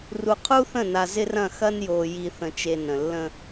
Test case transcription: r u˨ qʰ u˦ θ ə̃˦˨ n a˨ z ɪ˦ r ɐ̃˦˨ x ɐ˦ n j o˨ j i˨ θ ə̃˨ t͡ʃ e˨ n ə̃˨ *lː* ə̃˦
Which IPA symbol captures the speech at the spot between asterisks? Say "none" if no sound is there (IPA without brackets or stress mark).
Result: lː